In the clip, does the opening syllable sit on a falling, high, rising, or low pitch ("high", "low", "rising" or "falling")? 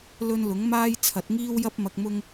high